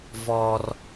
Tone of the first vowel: high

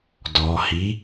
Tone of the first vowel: low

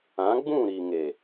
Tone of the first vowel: rising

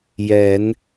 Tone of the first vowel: rising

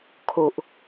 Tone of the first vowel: low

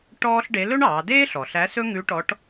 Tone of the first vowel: high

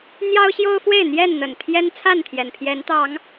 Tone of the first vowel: high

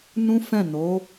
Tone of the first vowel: high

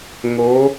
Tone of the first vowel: rising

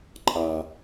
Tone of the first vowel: low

